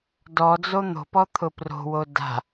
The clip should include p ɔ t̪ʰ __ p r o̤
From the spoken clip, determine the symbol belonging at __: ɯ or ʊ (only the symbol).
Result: ʊ